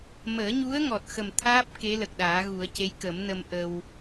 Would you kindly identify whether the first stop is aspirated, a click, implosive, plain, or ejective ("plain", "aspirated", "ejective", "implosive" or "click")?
plain